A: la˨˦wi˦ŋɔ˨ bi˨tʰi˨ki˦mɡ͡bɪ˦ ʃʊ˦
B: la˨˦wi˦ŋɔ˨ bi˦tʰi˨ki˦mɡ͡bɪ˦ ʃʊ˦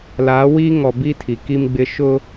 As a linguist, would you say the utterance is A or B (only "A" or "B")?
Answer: B